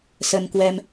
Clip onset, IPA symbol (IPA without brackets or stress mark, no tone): s